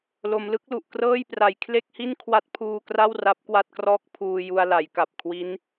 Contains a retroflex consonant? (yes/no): no